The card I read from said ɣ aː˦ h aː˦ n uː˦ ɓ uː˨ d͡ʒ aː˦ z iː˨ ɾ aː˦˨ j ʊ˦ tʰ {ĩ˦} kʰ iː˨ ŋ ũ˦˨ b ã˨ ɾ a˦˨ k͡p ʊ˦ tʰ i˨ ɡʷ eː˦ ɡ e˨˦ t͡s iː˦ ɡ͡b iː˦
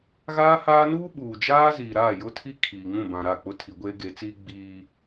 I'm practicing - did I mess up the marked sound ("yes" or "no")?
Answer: yes